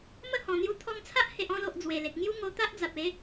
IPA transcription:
mə˥˧hɔ̃˨˩n̪ju˧ t̪ʰɔ˧ŋt͡sʰa˦ʔ he˨ʔɔ̃˧lo˨ʔ d͡zwe˨˩le˨k̚ ŋju˦ ŋo˧ t̪a˦ʔd͡za˨p̚e˨˦

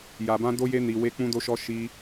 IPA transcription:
ja˨bã˧ do˧je˧ni˨ we˨˦k͡pũ˧do˧ʃɔ˧ ʃi˧

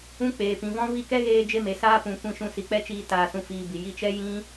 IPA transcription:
ũ˦k͡peː˨ pĩ˨vɔ̃˦ vi˦˨kɛ˦ɣeː˧ d͡ʒe˦me˨ saː˦pũ˨ kʷĩ˦˨ʃũ˦˨ si˨k͡pɛ˦t͡ʃiː˧ taː˨sũ˧ fiː˧bi˨ ji˧t͡ʃɛ˦ jĩ˦

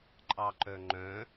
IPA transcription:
ǃʼɑǃœŋ͡ǃœ̃

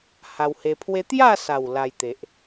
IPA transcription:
ha˧whe˧pʰwe˦ t̪ja˥˧sa˨˩w la˧jt̪e˨ʔ

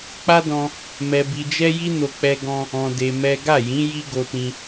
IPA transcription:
k͡pa˦dɔ̃˧ | mɛ˧bi˧d͡ʒɛ˦ ji˦no˧ k͡pɛ˦ɡɔ̃˦ | ɔ̃˧de˧ mɛ˦ ɡa˦˨jĩ˨˦ ji˦ɡo˧tĩ˧

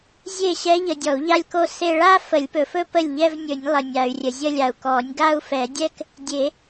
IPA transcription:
zʲe˥˩ɕɛ˧˥ʎə˨ dʲɔ˨˩˦u̯ʎa˥˧lʲko˥˧ se˥˧ ɭa˥˧fə˨˩˦lʲpɵ˨fɵ˥˧ pə˥˩lʲʎɛ˥˧vnʲɵ˨˩˦nʲlˠə˨ nʲa˨y̯rʲə˨zʲə˥˧lʲa˨u̯ kɔ˨˩˦nʲɡa˥˧u̯fɛ˨˩˦dʲɛ˥˧k | dʲe˨˩˦

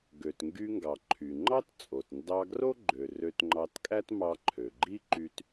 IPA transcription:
ɡø˩tŋɡy˧ŋɡɑ˩ ǃʰy˩ŋ͡ǃɑ˥tt͡sʼo˩t ndɑ˧ɡro˥ ɡ͡ǃø˩ rø˧tŋ͡ǃɑ˧tkʼæ˥t mɑ˧ǃʰø˩ɡ͡ǃi˥ ǃy˧t

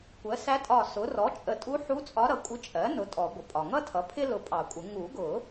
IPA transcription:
kʷɜ˩˥sæ˧˥tʼɒ˧˩sʊ˩˥ rɔ˩˥t͡ʃʼə˨˩˦tʼu˧˥ħu˧˥ t͡sʼɒ˧˥ɾʌ˩˥kʷʼɪ˧˥ t͡ʃʼɜ˩˥nʊ˩˥ tʼɔ˨˩˦ ɡʷə˩pʼɒ˩ŋʌ˥tʰʌ˩˥ pʰɪ˥lʊ˧˩ pʼɑ˨˩˦kʷʼɪ˨˩˦ ŋu˨˩˦ɡʊ˨˩˦

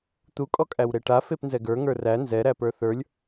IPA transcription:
t̪ukʼɔkʼæwɾe ʈa fepnzɛɡə˞ ŋə˞ræ nzɛɾæpə˞ θə˞lʲ

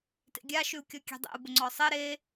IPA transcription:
tḛɡʲa ʃʉu̯kʲɔkʲe̤dˤḛu̯ bʊŋ͡ǀɔsˤe ɾe

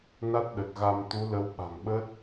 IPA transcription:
na˦˥t̚ɗə˨˩t̚ɣa˧mt̪u˨˦ lə˨˦wɓa̤˨˩ŋɓə˦˥t̚

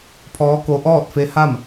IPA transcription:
pʰɔː˧˥ ko˧˥ ʔɔː˥˨t̚fe˧˥ha˥˨m

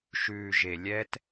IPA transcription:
ʃʉː˨ʒe˨lʲɛ˦t

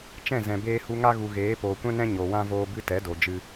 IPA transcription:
t͡ʃɛ̃˦˨zɛ̃˨beː˧ hu˧ŋa˦ɣu˨ɣeː˨˦ poː˨kʷɛ̃˦nɛ̃˦ ɲo˨wã˦voː˧bɨ˦ tɛ˨˦do˨d͡ʒɨ˧

